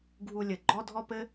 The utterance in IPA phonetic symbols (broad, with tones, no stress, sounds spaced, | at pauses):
ɡʱ u˧ lʲ ɘ˨ ɡ͡ǃ ɔ˦ dʱ ɔ˦ p ɘ˦